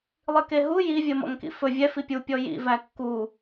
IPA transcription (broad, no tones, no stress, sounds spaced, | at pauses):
lˠ i k e ɦ u j i vʲ ɜ m ɔ̰ ŋ k ḭ f ɵ vʲ ɛ f i pʲ u pʲ ɔ j ḭ v æ kː u